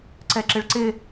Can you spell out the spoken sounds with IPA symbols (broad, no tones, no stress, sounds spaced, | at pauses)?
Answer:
ǀ ɛ ǁ ɪ ɭ ǀ ɪ